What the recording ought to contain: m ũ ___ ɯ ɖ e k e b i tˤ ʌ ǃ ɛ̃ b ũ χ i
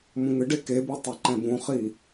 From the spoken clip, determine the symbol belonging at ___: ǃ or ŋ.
ŋ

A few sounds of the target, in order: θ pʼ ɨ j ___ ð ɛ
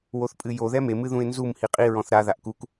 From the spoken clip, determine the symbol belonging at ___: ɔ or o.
o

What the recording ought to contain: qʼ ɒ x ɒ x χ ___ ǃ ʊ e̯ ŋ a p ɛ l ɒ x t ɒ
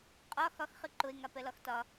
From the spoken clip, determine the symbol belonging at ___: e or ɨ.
ɨ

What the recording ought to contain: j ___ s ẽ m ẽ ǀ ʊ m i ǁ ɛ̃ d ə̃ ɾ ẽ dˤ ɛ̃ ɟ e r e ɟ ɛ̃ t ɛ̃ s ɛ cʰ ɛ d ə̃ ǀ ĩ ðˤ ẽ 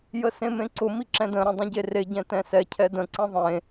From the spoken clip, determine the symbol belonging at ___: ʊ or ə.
ə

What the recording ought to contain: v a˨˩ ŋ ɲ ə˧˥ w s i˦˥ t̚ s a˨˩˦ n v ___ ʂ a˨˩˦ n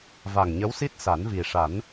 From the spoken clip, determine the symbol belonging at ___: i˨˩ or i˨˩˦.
i˨˩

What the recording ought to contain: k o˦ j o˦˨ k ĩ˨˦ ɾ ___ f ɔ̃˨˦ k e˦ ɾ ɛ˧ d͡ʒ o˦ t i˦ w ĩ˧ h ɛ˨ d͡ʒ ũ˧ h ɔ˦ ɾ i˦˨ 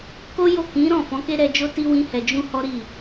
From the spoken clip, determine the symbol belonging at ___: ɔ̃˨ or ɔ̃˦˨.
ɔ̃˦˨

